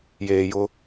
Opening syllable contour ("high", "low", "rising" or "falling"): low